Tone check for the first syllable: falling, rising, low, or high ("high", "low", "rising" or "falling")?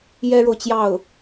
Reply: high